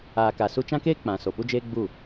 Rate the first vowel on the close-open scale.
open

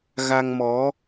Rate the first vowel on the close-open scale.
open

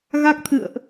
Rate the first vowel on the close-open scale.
open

